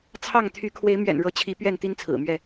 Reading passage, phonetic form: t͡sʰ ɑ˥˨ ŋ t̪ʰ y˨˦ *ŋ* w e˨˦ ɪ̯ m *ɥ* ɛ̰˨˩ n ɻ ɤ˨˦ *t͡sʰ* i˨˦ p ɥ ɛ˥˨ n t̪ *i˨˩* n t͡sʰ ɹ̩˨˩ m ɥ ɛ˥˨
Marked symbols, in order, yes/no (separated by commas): no, yes, no, no